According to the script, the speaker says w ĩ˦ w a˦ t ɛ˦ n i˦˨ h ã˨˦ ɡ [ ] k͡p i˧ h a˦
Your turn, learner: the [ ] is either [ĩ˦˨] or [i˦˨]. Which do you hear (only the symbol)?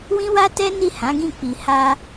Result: ĩ˦˨